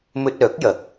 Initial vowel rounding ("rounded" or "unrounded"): rounded